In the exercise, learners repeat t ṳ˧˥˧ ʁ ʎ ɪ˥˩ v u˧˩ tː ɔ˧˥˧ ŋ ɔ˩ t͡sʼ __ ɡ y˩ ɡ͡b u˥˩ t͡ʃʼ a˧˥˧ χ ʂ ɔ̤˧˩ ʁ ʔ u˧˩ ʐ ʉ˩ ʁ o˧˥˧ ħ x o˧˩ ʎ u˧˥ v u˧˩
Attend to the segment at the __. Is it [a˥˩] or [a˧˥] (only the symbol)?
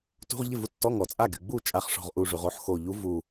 a˥˩